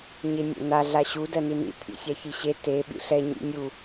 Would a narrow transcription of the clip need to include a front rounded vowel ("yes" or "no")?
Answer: no